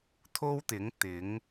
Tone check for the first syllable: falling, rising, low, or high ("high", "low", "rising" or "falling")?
high